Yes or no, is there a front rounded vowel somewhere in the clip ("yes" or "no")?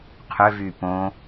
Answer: yes